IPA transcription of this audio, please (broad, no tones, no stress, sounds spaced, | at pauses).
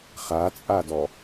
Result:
χ a t͡sʼ a d ɔ